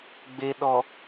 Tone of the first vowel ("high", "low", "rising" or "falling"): low